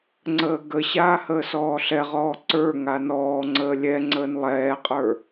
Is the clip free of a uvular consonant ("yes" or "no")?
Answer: no